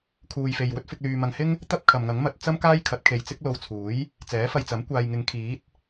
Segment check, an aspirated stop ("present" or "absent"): present